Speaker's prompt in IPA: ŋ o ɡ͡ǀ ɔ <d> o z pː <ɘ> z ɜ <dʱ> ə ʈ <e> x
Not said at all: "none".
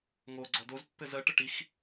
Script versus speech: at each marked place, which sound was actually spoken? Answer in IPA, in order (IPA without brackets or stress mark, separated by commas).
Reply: d, ɘ, ʈ, i